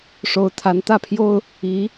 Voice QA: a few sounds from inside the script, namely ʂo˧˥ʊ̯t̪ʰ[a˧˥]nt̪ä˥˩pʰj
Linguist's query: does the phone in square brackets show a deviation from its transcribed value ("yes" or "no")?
no